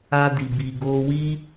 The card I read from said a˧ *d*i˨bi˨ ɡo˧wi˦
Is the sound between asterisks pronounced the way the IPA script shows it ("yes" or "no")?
yes